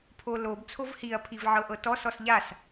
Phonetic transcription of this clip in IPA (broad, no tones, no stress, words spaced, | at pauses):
pʰolob t͡sʰovhiɐ̯pʰiv ʕɤʔɤtɔs ɔsʎas